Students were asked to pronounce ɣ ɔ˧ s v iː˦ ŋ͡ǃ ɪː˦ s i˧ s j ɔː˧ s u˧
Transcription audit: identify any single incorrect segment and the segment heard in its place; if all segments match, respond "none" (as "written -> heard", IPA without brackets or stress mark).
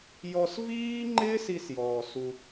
ɣ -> j